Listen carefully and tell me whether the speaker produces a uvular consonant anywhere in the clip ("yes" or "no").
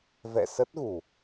no